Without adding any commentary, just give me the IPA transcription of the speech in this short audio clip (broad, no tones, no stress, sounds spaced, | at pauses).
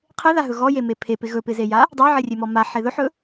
qʰ e ð a ɦ ɵ ɣ ɔ j e m e pʰ e p ɪ ɣ ɵ p ɪ z e j a | dˤ a ʕ e rʲ e m ɔ m a ħ e ð ɵ ħ ɵ